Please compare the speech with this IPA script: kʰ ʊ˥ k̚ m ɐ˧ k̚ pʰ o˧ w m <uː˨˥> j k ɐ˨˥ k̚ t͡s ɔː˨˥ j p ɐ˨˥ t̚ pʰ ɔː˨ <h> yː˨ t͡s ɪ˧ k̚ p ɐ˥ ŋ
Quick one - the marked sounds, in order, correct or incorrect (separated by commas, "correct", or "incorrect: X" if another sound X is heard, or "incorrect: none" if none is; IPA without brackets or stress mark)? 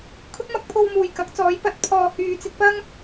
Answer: incorrect: uː˨˩, correct